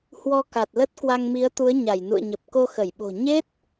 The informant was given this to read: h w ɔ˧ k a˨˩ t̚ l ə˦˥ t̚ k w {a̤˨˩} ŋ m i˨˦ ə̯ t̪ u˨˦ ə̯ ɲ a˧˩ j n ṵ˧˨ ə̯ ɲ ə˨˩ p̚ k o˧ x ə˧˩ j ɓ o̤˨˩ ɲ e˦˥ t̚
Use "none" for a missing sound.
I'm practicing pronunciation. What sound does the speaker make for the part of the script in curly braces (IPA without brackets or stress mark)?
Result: a˧